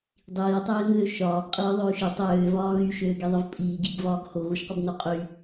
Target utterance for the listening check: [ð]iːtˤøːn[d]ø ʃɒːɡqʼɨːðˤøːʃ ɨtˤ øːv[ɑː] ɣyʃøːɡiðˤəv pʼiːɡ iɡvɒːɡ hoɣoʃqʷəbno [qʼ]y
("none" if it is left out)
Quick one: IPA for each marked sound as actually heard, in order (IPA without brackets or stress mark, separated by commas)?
dˤ, ð, ɒː, qʼ